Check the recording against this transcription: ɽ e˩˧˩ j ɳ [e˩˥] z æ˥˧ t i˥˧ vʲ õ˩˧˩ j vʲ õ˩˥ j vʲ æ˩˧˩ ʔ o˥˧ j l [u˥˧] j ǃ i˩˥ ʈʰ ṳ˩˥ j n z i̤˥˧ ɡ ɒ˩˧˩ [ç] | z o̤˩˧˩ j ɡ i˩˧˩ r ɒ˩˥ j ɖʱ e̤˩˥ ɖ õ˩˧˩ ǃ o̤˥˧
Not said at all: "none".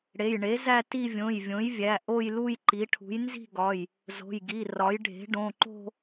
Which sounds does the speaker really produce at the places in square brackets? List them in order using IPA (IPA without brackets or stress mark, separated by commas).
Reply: e˩˥, u˥˧, j